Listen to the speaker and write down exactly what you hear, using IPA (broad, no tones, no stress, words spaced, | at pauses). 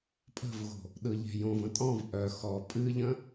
pʼə̤vɣo̤ | ɗɯʎe̤jõv ə̃tʼɔ̃v ʔœ xɔ pʼɨʎə̃